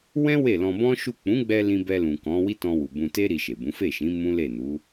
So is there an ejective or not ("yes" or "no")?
no